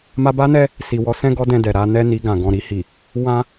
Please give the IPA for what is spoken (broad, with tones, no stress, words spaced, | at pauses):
ma˧ba˦nɛ˦ | si˨wɔ˨˦sɛ̃˦ ɡɔ˦dɛ̃˧dɛ˨ɾa˨˦ nɛ˦ni˧ ɡã˨ɡɔ̃˨ ɾi˧hi˨ | wã˦